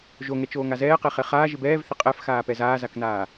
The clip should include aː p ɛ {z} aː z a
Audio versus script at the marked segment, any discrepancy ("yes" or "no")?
no